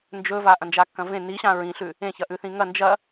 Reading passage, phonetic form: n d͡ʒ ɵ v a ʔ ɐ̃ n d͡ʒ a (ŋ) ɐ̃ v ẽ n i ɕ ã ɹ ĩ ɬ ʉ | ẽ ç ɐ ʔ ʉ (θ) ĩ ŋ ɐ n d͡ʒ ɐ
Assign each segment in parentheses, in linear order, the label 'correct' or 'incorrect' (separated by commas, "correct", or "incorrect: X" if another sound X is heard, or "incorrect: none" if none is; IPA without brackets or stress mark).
incorrect: kː, correct